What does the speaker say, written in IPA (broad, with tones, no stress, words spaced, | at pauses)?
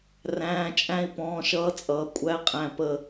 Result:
ræ̃ː˧˥˧t͡ʃʼæ̃˥i̯ pɔ̃ː˧˥˧ʃʌː˧˥˧t͡sʼʌː˩˥kʷʼæ˧˥˧ qʼæ̃˧˩pə˧˩